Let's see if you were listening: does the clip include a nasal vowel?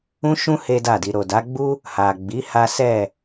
yes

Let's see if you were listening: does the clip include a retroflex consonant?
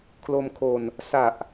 no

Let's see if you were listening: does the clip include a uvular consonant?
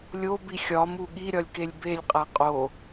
yes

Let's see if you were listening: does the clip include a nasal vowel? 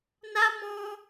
yes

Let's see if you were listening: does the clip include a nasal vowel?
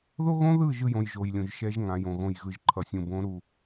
yes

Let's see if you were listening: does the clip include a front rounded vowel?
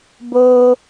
no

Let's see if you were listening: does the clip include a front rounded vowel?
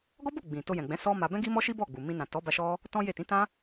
no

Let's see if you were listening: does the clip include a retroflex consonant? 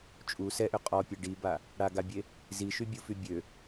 yes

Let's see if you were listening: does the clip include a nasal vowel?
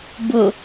no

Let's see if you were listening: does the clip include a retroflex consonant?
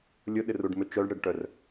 yes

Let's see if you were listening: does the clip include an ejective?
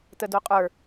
yes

